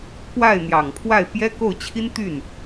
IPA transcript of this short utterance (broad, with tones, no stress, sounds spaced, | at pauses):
k w a˥˩ ɪ̯ n̪ j ɑ˨˩ ŋ pʰ w a˥˩ ɪ̯ p j ɛ˥ k o˥˩ ʊ̯ t͡ɕʰ i˥ n t̪ y˥˩ n